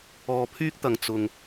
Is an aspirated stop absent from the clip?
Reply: no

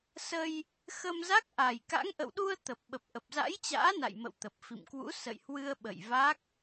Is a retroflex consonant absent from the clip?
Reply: yes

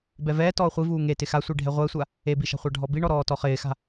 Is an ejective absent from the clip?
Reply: yes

